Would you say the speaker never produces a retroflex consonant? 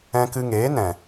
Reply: yes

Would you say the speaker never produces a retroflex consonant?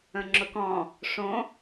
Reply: no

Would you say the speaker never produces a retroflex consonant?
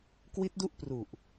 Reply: yes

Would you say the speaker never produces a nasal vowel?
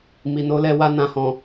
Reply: no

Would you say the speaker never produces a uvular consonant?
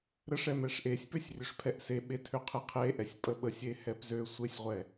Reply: no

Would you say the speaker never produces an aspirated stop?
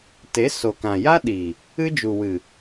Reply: yes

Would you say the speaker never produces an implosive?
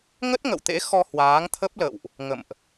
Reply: yes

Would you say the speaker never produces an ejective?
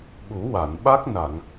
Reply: yes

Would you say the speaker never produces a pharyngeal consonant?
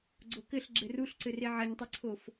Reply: no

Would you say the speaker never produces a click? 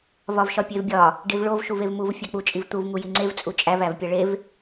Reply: no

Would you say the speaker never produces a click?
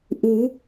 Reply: yes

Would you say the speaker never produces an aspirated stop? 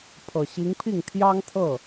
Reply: no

